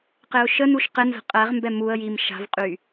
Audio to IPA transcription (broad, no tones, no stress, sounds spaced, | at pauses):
q ɪ ʊ̯ ʃ ə n u ʃ q ɪ n z ə̤ qʼ ɛ ʁ m b ɛ m u ə̯ j i m ʃ a̤ v qʼ y